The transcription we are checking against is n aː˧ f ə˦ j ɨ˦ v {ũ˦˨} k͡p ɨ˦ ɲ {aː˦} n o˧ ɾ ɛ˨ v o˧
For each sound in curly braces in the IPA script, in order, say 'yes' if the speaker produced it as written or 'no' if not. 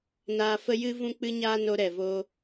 no, yes

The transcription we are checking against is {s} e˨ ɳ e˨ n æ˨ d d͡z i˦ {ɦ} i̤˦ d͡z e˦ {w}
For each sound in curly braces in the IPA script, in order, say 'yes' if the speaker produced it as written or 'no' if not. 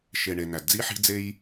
no, no, no

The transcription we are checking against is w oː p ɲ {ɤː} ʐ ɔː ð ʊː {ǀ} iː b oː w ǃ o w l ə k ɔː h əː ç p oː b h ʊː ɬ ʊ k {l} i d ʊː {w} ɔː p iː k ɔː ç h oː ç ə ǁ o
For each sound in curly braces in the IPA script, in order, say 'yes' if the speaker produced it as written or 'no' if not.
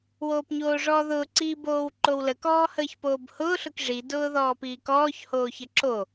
no, yes, no, no

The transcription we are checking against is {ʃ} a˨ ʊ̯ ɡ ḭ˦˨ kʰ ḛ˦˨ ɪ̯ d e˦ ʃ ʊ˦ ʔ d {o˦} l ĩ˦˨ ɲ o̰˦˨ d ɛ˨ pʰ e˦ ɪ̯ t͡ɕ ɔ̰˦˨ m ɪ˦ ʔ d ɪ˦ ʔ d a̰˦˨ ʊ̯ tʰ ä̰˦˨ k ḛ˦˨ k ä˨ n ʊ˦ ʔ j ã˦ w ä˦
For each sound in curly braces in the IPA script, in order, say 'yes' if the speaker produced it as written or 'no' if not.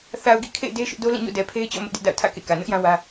no, yes

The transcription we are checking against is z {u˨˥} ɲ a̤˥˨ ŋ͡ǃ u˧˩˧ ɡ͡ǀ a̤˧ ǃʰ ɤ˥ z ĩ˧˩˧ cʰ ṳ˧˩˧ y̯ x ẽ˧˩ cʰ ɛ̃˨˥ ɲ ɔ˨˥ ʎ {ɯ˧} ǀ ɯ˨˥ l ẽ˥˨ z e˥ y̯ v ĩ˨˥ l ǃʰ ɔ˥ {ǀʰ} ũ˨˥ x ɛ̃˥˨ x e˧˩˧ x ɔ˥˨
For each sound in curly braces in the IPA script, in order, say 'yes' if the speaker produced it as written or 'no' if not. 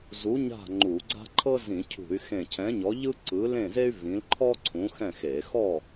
yes, no, yes

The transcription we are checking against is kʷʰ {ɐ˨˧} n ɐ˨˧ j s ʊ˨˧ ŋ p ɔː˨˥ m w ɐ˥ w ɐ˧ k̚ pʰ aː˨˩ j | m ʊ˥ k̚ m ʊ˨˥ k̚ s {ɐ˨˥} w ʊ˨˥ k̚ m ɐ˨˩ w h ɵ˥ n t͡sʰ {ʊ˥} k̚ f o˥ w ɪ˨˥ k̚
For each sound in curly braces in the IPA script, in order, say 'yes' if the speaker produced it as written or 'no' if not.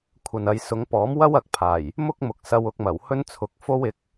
no, no, no

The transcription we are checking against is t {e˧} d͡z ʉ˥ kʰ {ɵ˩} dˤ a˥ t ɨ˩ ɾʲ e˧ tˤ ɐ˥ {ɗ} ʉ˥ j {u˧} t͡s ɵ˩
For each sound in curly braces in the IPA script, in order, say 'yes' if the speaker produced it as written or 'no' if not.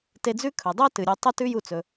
yes, yes, no, yes

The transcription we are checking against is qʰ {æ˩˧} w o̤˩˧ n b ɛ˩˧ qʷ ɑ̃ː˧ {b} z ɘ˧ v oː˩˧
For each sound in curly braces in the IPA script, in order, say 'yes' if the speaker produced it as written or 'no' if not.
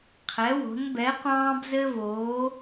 no, yes

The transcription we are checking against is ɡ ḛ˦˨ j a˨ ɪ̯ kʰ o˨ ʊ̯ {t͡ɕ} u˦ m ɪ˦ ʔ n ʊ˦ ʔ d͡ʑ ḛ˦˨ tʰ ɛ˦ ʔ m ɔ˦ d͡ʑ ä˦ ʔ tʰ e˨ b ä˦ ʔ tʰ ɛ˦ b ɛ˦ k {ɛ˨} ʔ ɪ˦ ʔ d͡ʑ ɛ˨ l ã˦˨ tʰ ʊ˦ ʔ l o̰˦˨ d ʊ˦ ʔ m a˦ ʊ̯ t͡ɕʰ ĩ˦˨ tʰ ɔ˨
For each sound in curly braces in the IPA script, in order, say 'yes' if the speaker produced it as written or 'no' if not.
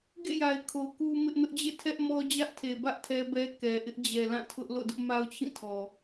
no, yes

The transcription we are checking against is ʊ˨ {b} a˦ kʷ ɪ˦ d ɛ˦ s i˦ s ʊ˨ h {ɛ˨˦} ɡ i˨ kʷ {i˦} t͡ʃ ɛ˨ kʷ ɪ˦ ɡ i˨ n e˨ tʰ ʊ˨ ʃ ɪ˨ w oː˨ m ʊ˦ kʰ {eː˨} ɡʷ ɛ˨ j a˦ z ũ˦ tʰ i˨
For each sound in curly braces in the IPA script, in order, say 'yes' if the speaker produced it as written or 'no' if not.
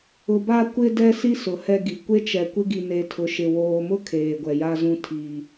yes, no, no, yes

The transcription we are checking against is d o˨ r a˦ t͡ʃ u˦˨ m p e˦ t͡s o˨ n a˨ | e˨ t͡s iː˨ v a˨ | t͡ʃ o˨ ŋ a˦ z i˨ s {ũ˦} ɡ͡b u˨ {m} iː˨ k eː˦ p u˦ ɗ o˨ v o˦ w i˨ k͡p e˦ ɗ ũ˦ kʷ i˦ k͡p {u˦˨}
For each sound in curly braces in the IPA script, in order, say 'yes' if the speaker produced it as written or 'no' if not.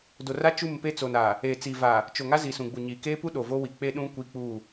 no, no, yes

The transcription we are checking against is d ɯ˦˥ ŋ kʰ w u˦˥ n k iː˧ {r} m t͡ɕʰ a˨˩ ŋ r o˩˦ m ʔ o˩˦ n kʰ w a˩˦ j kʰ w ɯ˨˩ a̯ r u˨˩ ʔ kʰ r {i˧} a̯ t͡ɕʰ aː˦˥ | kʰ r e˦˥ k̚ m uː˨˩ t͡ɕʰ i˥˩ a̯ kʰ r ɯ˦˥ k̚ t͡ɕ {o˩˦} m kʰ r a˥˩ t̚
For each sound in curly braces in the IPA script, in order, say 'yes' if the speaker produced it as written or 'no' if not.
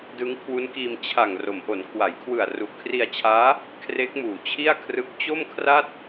no, yes, no

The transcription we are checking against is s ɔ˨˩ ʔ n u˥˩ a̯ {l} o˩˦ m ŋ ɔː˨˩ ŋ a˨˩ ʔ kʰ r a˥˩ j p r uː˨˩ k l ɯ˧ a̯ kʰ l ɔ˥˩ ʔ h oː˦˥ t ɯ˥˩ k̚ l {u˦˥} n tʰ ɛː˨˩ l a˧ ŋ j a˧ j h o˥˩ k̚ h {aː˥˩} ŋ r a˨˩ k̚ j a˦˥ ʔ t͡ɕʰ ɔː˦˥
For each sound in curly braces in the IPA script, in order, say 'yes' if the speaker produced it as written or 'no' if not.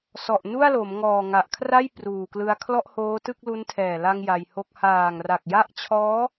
yes, yes, no

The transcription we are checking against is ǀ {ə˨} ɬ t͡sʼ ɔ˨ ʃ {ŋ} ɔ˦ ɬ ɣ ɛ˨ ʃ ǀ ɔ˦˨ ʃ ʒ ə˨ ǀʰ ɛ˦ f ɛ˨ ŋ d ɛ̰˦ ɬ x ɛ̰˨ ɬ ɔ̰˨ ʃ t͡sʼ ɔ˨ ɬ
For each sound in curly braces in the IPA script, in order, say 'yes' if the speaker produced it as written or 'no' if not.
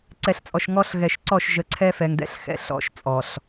no, yes

